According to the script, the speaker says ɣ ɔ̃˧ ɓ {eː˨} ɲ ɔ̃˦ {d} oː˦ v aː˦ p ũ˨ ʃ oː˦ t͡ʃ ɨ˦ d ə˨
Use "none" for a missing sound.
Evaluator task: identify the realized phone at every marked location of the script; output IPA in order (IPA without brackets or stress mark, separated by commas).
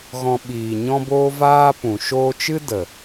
iː˨, b